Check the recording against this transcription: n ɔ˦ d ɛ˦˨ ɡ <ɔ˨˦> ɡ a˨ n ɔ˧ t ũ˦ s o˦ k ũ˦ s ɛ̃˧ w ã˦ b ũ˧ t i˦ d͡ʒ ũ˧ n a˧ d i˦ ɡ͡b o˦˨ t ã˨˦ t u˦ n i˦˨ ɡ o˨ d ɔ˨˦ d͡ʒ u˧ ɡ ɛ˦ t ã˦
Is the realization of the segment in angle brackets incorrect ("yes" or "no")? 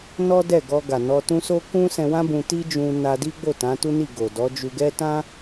yes